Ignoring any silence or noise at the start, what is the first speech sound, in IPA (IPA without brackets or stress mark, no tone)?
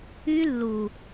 y